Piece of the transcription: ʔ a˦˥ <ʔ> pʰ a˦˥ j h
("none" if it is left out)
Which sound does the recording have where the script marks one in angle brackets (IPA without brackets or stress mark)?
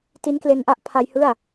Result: ʔ